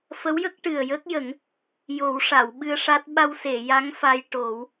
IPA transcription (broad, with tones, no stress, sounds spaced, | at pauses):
f ə˧˥ w j ə˦˥ k̚ ʈ ɨ˨˩ ə̯ j əː˦˥ k̚ j ə˨˩˦ ŋ | j o˨˩˦ w ʂ a˨˩˨ w ɓ ɨ˧ ə̯ ʂ a˦˥ t̚ ɓ a˧ w s e˨˩˨ j a˧˥ ŋ f a˧ j ʈ o˨˩˦ w